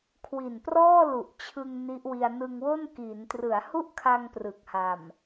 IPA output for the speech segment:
kʰ w i˨˩ n p r ɔː˥˩ l u˨˩ ʔ t͡ɕʰ ɯ˧ ŋ n i˦˥ ʔ w i˧ a̯ n ɯ˧ ŋ w o˥˩ n k i˩˦ n t r ɯ˩˦ a̯ h u˥˩ ʔ kʰ a˧ ŋ p r ɯ˨˩ k̚ h a˨˩ m

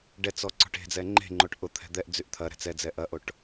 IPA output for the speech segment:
ɖ ɛ t͡s ɔ ǀ ɔ̤ ʈ e̤ d͡z ɛ ŋ͡ǃ e̤ ŋ͡ǃ o ʈ ʔ ʊ t̪ʰ ɛ̤ d̪ ɛ ʔ d͡z y ʔ t̪ʰ ɐ ɾ ɛ̤ t͡s ɛ d͡z ɛ ʔ ɐ ʔ o ʈ

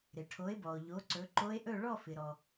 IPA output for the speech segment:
ɾ ɪ˩ ʈʰ o˨˦ e̯ b ɔ˩ o̯ ʎ o˨˦ ǀ ɵ˨˦ ǃ o˦˥ e̯ ʔ ɵ˥˧ ɭ ɔ˥˧ f ɪ˩ ɾ ɔ˩

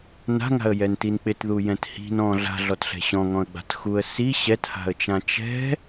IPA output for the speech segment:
n a̤ ŋ a̤ ə̯ j ɛ n t i n k͡p ɪ t ð u j ɛ̃ t h i̤ n ɔ̃ ɮ a̤ ɮ ɔ t ɬ ɛ̤ ɕ ɔ̃ ŋ ɔ̃ ə̯ ɡ͡b a̤ t x u ə̯ s i ɕ ɛ t h a̤ ə̯ t͡ʃ ã t͡ʃ ɛ̤

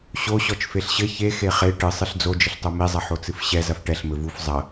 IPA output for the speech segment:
ɕ o ɕ ɔ t͡ʃ f e ɬ ɕ ɘ ç e x e χ e ʈ ɨ sˤ ɨ ɬ d͡z o d͡ʒ ɘ ɬ tˤ o m i zˤ ɐ ħ o t͡s ɨ f ɕ ɛ z ɐ f ʈ ɛ ɬ m ɘ v u f zˤ ɐ

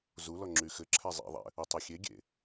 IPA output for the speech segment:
z u l ɔ ŋ͡ǁ y x ɘ ǁʰ ɛ zˤ ḭ ðˤ ɛ̰ | u tˤ i xʲ e ɡʲ ḛ

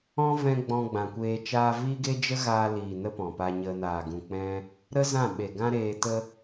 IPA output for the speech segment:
ɔ̃˦ v ɛ̃˧ ɡ͡b ɔ̃˧ ɡ͡b ã˨ kʷ eː˧ t͡ʃ aː˧ v iː˦ ɡ e˦ d͡ʒ ə˦ ɣ aː˧ l iː˨ n ə˦ p ɔ̃˨ p aː˧ ɲ ə˧ n aː˨ ɡ ũ˨ k͡p ɛ̃˧ | ɾ ə˦ z ã˦˨ ɓ e˨ ɡ ã˦ ɾ eː˧ t ə˧

